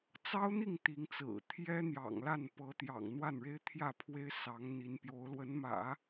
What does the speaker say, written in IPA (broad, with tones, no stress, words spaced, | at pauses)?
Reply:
t͡sɑ˥ʊ̯n̪i˥˩ŋ t̪i˧˥ŋt͡sɹ̩˨˩ t̪ʰjɛ˥n̪jɑ̰˨˩ŋla˥˩n pɤ˧˥ t̪jɑ̰˨˩ŋn̪wa˥˩nɻe˥ɪ̯ t̪ʰjä˥˩pʰwe˥ɪ̯sɑ˧˥ŋ n̪i˧˥npjo˧˥ʊ̯ lwə˧˥nmä̰˨˩˦